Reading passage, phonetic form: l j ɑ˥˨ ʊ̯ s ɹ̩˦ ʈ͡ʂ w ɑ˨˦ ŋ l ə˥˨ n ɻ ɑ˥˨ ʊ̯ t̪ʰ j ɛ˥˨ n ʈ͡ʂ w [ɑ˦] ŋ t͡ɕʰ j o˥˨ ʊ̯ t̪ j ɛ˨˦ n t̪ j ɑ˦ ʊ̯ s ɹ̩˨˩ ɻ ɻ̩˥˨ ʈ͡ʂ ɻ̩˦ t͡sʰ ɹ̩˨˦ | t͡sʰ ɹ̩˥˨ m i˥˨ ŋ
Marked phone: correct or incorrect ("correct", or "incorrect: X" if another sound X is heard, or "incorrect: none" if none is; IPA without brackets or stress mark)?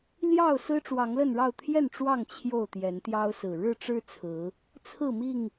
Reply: incorrect: ɑ˥˨